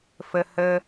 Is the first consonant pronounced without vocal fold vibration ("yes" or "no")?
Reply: yes